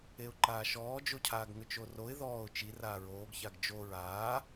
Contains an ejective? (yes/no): no